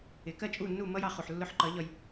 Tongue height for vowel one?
high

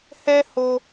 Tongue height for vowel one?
mid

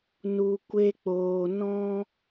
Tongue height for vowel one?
high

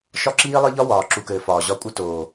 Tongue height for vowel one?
low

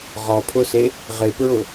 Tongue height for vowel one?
mid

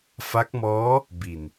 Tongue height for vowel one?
low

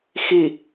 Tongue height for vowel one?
high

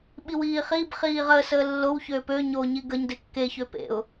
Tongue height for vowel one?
high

